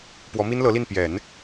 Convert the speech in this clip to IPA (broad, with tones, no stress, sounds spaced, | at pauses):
p w ɔ˧˥ m i˥ n l ɤ˧˥ l i˥˩ n p j ɛ˨˩˦ n